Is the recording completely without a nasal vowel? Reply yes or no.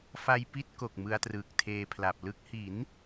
yes